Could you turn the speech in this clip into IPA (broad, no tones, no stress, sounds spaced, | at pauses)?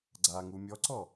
ɡ͡ǀ a ŋ u mʲ ɔ ǀ ɔ